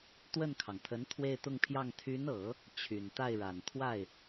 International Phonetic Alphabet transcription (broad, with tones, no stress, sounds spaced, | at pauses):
t̪ w ə˥˩ n kʰ ɑ˩ ŋ t̪ʰ ə˧˥ n t̪ʰ w e˥˧ ɪ̯ t̪ ʊ˥˧ ŋ pʰ j ɑ˥˩ ŋ t̪ʰ y˧˥ n ɤ˨˩˦ | t͡ɕʰ y˨˩ n t̪ a˥˩ ɪ̯ ɻ a˨˩ n t̪ʰ w a˥˩ ɪ̯